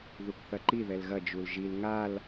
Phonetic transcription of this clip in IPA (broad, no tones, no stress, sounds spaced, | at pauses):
ð u k θ ɐ ǃ i ð ɛ l ɣ ɐ d͡ʒ u l ʒ i l ŋ a l